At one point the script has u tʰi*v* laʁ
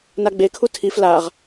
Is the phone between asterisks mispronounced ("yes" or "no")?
yes